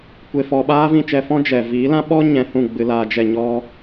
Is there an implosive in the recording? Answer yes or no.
yes